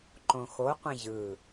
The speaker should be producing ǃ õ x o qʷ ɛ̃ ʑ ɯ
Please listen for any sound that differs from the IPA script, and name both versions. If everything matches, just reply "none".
none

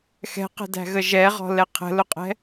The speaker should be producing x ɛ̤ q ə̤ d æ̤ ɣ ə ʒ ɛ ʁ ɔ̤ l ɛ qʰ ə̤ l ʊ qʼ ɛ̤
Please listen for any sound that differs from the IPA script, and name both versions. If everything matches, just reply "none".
none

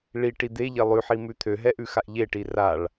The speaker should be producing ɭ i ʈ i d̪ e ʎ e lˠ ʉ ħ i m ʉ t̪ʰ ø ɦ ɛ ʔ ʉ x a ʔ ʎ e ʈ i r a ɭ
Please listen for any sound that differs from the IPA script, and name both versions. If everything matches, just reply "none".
none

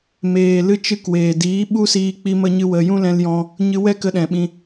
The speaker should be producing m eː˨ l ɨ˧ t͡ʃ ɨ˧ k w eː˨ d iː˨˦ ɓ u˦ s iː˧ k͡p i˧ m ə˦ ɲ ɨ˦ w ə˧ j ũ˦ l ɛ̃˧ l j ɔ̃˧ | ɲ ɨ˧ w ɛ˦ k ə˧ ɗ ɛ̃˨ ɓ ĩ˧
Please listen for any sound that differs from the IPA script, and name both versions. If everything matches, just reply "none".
none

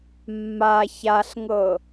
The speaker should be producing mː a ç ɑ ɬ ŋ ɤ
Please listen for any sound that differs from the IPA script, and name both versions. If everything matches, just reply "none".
ɑ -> a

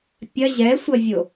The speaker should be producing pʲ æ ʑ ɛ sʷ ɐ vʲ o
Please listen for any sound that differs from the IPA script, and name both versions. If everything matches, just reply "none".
æ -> ɐ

